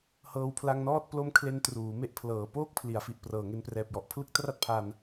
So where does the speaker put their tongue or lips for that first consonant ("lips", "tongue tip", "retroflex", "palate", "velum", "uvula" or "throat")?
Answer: throat